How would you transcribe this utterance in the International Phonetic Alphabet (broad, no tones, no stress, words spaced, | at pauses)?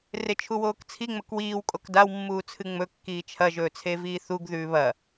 ret͡ʃʰuwoːkt͡sʰi ŋ͡mɵkwiːw kʼokdaw mːuːt͡sʰɨŋ͡mɵ kːiːt͡ʃʰɐ ʒɵːt͡sʰeviːθuɡ ðʉːβɐ